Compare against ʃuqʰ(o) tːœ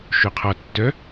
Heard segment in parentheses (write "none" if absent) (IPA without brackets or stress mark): ɔ